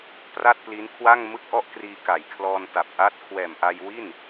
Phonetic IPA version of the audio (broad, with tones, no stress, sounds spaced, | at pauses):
p r a˥˩ t̚ p l i˦˥ n kʰ w a˥˩ ŋ m ɯ˥˩ k̚ ʔ ɔ˥˩ ʔ k r iː˧ k a˨˩ j kʰ l ɔː˧ n t a˨˩ p̚ ʔ a˦˥ t̚ kʰ w ɛː˨˩ m ʔ a˧ j w i˥˩ n